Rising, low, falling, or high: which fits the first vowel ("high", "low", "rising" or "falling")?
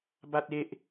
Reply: high